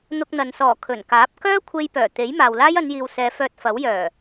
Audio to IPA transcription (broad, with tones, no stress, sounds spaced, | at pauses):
n̪ ʊ˧ k̚ n̪ ɐ˨ n s ɔː˨˩ kʰ ɵ˨˩ n k aː˨˥ p̚ k œː˥ kʷʰ e˧ j p œː˨˩ t̪ e˨˥ j m aː˨ w l aː˥ j ɐ˨˧ n j iː˨ w s ɛː˨˧ f œː˧ t̚ f ɐ˨˥ w j œː˨˩